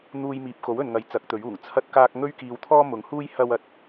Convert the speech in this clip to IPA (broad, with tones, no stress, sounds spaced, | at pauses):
n̪ uː˧ j m iː˨ p̚ k o˨˥ w ɵ˨ n ŋ ɐ˨˥ j t͡s ɐ˨˥ k̚ t̪ ɵ˨˥ ɥ uː˨˩ ŋ t͡sʰ ɐ˥ t̚ k aː˥ k̚ ŋ ɵ˥ ɥ k iː˧ w t̪ʰ ɔː˥ m ʊ˨˧ ŋ h uː˥ j h ɐ˥ w ɐ˨ t̚